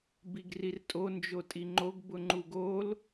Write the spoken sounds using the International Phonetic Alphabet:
b i ɡ r i r tʼ o n d͡ʒ o tʼ i ŋ͡ǃ o ɡ b ʊ ŋ͡ǃ u ɡ o l

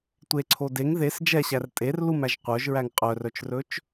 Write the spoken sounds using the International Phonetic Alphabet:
tʷ e ǀʰ o d e ŋ ð e s d͡ʒ ɛ ɕ æ r tʼ e r l u m æ ʒ qʷ œ ʒ ɹ æ ŋ qʼ œ r œ t͡ʃ r ɵ t͡ʃ

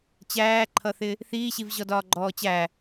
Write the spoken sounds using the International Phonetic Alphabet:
t͡ɕ æː ǃʰ ʌ θ ɪ | θ iː ɕ i v ʑ ɔ d ɒː ɡ͡ǃ ɔː t͡ɕ æ

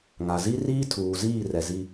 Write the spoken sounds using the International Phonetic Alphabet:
ŋ a˨ z i˦ r iː˦ tʰ uː˨ z iː˦˨ r ɛ˨ z i˦

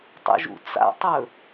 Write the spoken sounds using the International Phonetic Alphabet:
tˤ ṵ ʒ ṵ t͡s a̰ tˤ ɵ

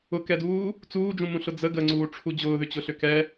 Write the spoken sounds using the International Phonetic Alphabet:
ʊ k ɛ d uː | t͡s uː d͡ʒ ũ m ũ ɬ ʊ d͡z ə ɡ ə ŋ͡ǀ uː ʈ͡ʂʰ u d͡ʑ ʊː ð ʏ t͡ɕ ʊ ɬ ʏ k ɛ

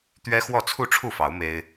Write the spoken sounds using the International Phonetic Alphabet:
t̪ ɥ ɛ˦ x w ɔ˥˨ t͡sʰ u˥˨ ʈ͡ʂʰ u˥˨ f ɑ˨˦ ʊ̯ m e˦ ɪ̯

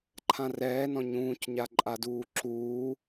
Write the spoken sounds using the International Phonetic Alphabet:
ǃʰ ã r ɛː n ɔ̃ ɲ ũː c ɲ a ǃʼ a d uː ǁ uː

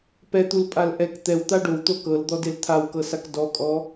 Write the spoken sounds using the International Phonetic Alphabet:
p ɛ t̪ u l pʼ a l ʔ ɛ k t̪ ɛ w t̪ a ɖ o w t̪ o k ɤ l d̪ ɔ d e l t̪ʰ a w k ɤ s a k d ɔ kʼ ɔ

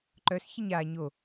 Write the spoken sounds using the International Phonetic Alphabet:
ǃ œ s ç ə ɲ a ɲ o

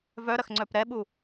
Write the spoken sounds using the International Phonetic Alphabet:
v œ ɾ ɐ x ŋ͡ǀ œ p ɾ ɛ ɓ u

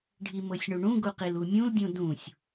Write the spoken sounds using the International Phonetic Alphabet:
ɖʱ i m ɤ sʲ ɳ u ɳ ũ ɡ u q i l u mʲ ũ l dʲ ũ d ũ sʲ

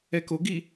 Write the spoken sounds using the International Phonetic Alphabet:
ɛ k o ɡ i

